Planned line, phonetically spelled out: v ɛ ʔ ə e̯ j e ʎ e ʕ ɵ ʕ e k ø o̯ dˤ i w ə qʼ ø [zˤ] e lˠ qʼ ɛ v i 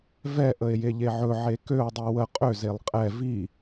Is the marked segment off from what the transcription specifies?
yes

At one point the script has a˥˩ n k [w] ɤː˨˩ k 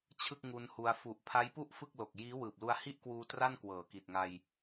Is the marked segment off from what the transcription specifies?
no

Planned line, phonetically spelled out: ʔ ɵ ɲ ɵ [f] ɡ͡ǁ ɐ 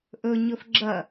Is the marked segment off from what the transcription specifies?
no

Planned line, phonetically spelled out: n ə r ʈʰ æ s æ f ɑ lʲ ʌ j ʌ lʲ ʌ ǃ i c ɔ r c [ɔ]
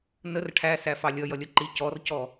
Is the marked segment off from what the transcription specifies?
no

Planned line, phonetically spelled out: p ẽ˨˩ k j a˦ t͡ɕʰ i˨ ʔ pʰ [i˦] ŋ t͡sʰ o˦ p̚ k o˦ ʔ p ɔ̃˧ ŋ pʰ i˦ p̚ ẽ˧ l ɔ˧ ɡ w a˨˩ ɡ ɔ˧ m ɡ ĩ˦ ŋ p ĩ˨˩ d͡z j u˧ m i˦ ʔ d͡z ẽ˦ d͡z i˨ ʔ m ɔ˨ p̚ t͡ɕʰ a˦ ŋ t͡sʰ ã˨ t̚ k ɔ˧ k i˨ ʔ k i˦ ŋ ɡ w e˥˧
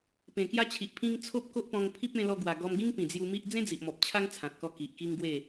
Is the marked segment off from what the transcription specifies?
yes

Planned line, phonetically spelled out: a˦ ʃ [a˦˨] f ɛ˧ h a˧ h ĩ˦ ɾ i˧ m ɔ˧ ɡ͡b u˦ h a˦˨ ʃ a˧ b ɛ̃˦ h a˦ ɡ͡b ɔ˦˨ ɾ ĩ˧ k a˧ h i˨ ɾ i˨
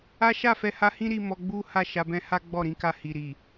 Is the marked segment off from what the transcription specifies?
no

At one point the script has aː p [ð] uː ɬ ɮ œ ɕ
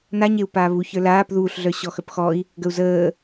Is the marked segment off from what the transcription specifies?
no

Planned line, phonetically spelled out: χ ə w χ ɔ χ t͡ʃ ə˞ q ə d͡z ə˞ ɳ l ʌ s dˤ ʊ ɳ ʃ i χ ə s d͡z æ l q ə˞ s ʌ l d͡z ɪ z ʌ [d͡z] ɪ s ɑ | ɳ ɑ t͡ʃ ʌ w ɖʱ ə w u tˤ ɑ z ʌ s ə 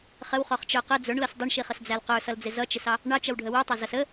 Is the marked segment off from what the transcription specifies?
yes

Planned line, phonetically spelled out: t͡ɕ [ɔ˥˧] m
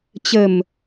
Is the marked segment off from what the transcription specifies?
yes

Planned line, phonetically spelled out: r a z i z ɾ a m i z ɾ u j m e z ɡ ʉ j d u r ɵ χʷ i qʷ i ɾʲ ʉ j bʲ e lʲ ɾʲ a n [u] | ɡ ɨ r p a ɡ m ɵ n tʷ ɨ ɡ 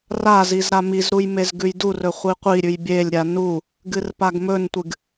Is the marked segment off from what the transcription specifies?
no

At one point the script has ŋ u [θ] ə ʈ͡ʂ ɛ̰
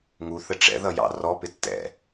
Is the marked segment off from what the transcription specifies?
no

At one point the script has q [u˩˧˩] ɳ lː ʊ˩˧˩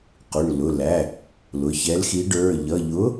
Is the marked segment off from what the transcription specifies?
no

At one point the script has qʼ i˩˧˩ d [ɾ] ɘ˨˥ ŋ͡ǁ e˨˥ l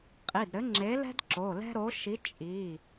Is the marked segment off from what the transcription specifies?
no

